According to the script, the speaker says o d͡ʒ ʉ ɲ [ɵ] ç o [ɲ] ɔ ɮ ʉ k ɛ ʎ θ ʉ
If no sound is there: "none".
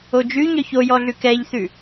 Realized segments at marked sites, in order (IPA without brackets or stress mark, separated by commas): œ, j